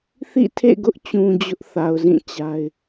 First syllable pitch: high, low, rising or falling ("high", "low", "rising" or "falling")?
falling